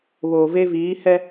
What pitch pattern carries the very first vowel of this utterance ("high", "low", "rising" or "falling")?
low